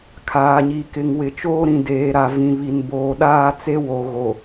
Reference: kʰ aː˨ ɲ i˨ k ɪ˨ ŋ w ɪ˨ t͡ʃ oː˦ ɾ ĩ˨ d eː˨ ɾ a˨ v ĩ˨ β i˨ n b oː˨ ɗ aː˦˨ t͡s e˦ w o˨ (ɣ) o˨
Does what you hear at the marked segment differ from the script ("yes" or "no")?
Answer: no